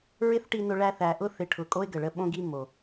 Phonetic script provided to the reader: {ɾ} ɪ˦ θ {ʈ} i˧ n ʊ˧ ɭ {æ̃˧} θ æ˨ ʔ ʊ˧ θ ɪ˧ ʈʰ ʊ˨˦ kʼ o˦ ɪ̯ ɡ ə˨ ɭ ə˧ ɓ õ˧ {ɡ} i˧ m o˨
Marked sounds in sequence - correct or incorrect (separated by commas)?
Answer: incorrect, correct, incorrect, correct